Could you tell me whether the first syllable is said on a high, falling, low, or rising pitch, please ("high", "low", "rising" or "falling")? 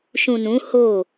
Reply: low